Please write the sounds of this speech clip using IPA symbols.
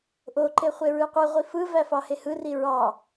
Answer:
ʔoǃe χʷeɹɯqʷɯʁʷi fɯvæ fɑhehɯri ɹɑ

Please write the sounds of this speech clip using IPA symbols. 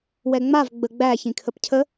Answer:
wɛŋ͡mav ɡ͡bəɡ͡bæ çĩkʰəpcʰə

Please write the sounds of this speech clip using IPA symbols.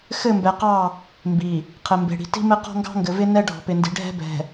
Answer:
xɘ˦˨mbɛ˨qɑ˦˨ | mbi˨ | qʰɘ˨mbe̤˨ɽi̤˨ ti̤˦mɘ˦ qɔ̤˦ŋɡɑ̤˦ŋɡɘ˨vɪ˦ nɛ˦ ɖʱɔ̤˨pɪ˨ndi̤˨ ɖʱɛ̤˦bɛ̤˨

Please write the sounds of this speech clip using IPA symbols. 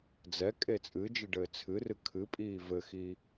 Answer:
d͡zɛkʼe t͡sʼɨd͡ʒɨ ɖɘːt͡sʰɨrɨ kʰɨpʼiː vɘxi

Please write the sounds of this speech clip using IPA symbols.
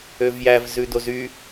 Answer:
øvjæv zʉdozy

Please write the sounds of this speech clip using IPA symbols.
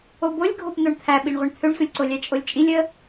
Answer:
obolʲɡʱop n̪oɳt̪ʰæɓiɳʁʷəɳ t̪ʰøɳsʷəlʲǀolʲæ t͡ʃʼolʲt͡ʃʼilʲ ə

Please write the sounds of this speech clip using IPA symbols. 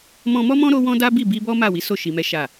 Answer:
mɔ̃˧mɔ˦mɔ̃˦ ɾo˦wɔ̃˦ da˦bi˦˨ bi˧bɔ˦ ma˦˨wi˨˦so˦˨ ʃi˧mɛ˦ ʃa˦˨

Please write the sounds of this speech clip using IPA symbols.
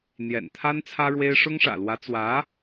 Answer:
n̪jɛ̰˨˩nt̪ʰa˥n t͡sʰä˥ɻwe˥ɪ̯ ʂʊ˥ŋʂä̰˨˩lwä˧˥ t͡swä˧˥

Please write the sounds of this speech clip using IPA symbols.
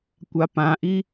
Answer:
kʷapãʔi

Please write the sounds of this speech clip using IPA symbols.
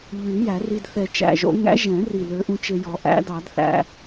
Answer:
ʎy˨˩˦ jæ˨˩˦ri˧d θɛ˨˩t͡ʃæ̰˨˩ʒo̰˨˩˦ŋæ̰˨˥ ʒɛ̃˨˩˦ri˨˩ lø˨˥ʔũ˧t͡ʃe˧jɔ˨˩˦ ʔæ̰˨˥dɑ˨˩˦dθæ̰˧

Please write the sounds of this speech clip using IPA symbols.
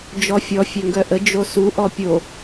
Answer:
d͡ʒɔfʲɔ fʲœŋɡœʔə d͡ʒosu ʔɔpʲo

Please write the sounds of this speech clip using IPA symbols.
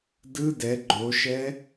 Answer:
dɯ dɛ ɡ͡ǃoʃɛ

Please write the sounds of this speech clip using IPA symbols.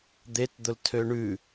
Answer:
d̪etd̪ʊltʰø ɳʉ

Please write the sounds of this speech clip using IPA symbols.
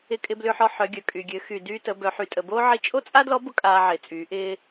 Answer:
ɪ˧kʼɪ˧blʏː˧ħɔ˧ ħœ˩˧ɡʲœ˩kʼy˩ ɡʲø˩˧ xy˩ dyː˧tə˩˧ bœ˩˧ ħy˩tʼə˩boː˥ ʕi˧t͡ʃʼo˥t͡sʼa˥dlɔ˧˥ bʊ˥kʼaː˧ʕɪː˩t͡sʼyː˩˧ ʔɪː˧

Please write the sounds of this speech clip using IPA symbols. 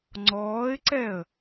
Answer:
ŋ͡ǀɔːɪ̯ǀɛə̯

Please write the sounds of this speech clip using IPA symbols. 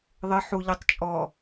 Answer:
ðˤɪ ħuʎitˤ t͡ʃʼɔ

